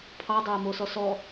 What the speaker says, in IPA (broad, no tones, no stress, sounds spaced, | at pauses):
pʰ ɑ dˤ ɑ ə̯ m o s ɔ s ɔ